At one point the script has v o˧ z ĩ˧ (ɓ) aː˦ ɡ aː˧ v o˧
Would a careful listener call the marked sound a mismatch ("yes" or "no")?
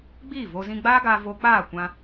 yes